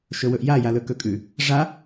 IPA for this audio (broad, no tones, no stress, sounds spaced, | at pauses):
ʃ ɵ w ɵ ʔ j a j a l ɵ k ɵ kʼ ʉ | ʐ a